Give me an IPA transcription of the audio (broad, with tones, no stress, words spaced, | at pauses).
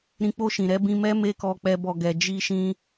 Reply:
ɾĩ˧ k͡po˧ʃĩ˨ ɾɛ˨˦bĩ˧mɛ˦ me˦kɔ˧ k͡pɛ˦bɔ˧ɡɛ˧ d͡ʒi˦ʃĩ˦